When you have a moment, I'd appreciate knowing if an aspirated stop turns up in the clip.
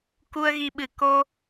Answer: no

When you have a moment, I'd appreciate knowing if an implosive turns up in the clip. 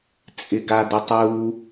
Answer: no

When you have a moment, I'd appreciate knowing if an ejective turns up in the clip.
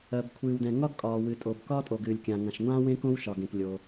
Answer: yes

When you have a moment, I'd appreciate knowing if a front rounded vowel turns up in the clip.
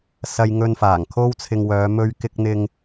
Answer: yes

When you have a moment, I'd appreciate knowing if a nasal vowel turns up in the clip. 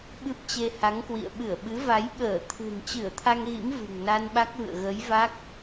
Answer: no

